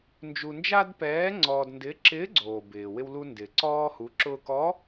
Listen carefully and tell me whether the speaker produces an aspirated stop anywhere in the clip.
no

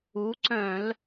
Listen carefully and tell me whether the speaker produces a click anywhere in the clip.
yes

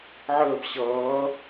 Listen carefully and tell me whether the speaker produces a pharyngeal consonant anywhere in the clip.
yes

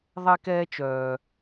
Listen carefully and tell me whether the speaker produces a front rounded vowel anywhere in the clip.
yes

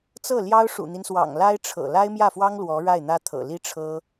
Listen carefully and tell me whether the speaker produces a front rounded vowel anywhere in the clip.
no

